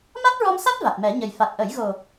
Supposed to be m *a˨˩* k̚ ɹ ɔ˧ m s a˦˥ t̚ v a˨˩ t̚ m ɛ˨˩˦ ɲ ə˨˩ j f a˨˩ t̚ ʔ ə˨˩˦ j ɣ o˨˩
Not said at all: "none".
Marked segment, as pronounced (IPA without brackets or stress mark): a˦˥